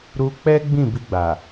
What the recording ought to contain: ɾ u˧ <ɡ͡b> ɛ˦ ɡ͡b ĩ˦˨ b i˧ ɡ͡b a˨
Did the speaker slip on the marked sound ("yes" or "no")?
yes